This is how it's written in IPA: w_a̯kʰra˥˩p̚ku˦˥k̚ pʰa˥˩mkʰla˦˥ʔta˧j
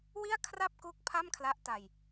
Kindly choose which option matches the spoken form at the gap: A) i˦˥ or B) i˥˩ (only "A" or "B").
B